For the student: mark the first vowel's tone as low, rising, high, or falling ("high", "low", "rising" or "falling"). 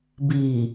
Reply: low